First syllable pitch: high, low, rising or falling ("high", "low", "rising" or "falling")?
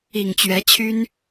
low